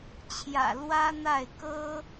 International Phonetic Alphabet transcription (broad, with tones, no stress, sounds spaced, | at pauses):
t͡ɕʰ j ä̰˨˩ l w ä˥ n̪ a˥˩ ɪ̯ k ɤ˥